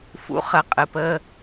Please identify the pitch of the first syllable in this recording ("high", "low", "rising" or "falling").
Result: rising